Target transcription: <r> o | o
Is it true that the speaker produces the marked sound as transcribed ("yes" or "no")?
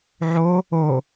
no